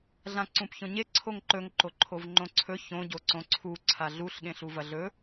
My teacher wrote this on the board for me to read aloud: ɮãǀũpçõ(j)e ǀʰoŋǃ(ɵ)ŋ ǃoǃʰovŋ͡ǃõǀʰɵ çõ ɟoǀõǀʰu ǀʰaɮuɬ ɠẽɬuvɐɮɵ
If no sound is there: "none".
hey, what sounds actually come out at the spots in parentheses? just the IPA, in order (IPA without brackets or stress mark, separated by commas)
ɲ, ɵ